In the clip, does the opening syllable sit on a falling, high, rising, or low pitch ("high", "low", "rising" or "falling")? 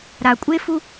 low